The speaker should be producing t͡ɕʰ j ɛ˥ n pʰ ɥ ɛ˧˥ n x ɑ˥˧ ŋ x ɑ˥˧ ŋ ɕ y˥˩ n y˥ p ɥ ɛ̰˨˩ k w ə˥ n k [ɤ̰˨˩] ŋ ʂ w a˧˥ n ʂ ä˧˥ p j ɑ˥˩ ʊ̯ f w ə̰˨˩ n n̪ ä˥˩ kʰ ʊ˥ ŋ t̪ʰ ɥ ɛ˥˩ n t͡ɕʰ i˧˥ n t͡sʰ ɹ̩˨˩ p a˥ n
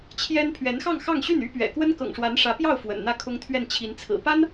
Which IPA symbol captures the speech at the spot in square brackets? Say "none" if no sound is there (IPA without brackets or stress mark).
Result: ɤ̰˨˩